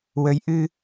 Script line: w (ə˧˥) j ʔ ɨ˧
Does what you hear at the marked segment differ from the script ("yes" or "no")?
no